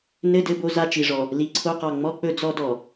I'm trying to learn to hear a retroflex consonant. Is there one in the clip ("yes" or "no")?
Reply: yes